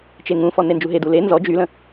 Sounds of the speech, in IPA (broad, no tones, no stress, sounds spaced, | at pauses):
t͡ʃ e ŋ ũ f ɔ n e n d͡ʒ u ɦ e d u l e n z ɔ d͡ʒ y l ə̃